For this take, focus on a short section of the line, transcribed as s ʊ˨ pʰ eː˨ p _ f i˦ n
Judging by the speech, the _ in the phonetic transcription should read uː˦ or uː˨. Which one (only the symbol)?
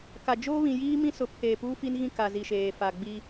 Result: uː˦